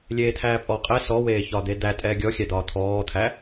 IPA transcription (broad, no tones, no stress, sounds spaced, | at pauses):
lʲ eː t̪ʰ æː pʼ ɔ qʼ ɛ s ɔ w eː ç ɒ d̪ e d̪ æ tʼ ɛː ɡʲ ɔ xʲ æ d̪ ɒː t̪ʰ ɔː t̪ʰ æ